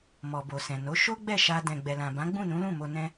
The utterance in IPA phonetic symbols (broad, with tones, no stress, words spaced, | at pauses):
mɔ˨bo˨sɛ̃˨no˨˦ ʃo˦ɡ͡bɛ˦˨ʃa˧ dɛ̃˨ɡ͡bɛ˨lã˨ bã˨˦ɡ͡bũ˦˨nũ˨˦lũ˦˨ mo˧nɛ̃˦